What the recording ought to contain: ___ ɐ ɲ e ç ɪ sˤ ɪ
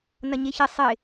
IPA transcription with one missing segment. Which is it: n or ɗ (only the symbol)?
n